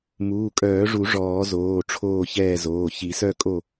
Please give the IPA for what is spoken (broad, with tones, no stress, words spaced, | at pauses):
muː˩˧˩kʼœː˨˩˦ʐu˨˩˦ ʐɔː˨˩˦zoː˩˧˩ ʈ͡ʂʰoː˦˨çɛː˦˨zoː˩˧˩ çi˨˩˦sœ˦˨kʼo˦˨